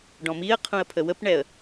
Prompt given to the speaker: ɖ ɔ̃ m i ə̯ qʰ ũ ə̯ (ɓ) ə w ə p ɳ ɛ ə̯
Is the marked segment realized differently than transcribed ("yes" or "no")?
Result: yes